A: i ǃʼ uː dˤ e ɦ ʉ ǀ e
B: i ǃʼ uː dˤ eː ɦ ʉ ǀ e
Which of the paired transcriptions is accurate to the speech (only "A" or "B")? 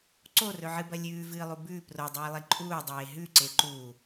B